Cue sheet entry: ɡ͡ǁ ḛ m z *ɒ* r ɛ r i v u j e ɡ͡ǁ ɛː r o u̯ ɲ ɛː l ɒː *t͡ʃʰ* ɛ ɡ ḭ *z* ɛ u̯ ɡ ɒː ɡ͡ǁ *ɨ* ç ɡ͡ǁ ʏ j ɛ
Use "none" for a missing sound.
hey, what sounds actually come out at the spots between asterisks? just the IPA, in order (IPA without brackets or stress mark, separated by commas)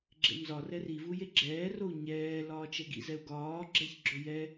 ɒ, t͡ʃ, z, ɛ